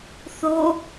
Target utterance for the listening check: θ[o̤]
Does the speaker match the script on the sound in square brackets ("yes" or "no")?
no